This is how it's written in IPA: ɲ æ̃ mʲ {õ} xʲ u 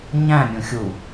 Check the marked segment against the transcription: incorrect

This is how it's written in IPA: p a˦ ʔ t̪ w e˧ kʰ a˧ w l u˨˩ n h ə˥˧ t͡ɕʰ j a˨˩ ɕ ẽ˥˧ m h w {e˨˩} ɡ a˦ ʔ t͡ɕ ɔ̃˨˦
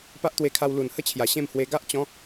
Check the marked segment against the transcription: incorrect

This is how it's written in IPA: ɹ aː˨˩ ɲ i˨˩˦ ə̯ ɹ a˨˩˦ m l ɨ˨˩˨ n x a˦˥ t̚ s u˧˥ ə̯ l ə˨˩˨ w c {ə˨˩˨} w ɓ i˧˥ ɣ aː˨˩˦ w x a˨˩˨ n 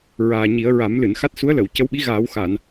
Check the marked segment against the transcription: incorrect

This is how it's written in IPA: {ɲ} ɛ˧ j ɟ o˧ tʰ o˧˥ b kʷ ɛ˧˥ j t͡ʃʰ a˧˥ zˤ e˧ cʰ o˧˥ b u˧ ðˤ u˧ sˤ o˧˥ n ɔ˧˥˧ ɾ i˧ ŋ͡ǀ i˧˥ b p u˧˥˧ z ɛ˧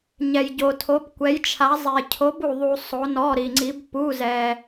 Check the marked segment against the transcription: correct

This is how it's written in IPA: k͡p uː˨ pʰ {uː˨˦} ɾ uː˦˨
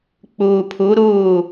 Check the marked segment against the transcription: incorrect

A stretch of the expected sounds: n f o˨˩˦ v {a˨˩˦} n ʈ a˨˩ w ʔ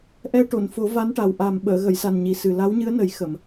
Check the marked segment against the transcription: incorrect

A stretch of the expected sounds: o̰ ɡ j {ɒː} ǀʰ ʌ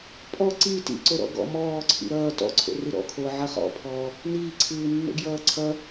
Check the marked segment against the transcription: incorrect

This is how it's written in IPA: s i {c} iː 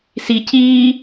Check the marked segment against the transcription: correct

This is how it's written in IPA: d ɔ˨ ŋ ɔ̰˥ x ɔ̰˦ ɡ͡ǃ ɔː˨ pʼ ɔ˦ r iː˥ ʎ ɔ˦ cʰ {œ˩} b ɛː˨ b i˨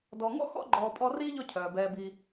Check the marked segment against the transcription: incorrect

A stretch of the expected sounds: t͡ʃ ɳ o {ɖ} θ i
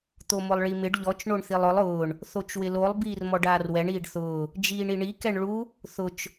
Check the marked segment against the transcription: incorrect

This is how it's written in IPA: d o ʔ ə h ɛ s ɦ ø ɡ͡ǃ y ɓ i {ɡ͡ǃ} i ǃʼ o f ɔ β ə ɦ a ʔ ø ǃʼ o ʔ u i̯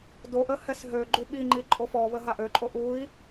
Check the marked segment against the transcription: incorrect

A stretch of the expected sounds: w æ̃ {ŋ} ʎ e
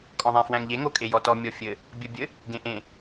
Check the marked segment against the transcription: correct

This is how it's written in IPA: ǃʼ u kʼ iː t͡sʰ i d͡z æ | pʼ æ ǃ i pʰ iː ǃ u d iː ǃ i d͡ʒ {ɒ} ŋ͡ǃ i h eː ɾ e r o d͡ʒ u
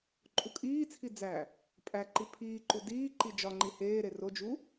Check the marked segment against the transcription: correct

